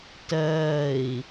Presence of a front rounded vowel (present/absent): absent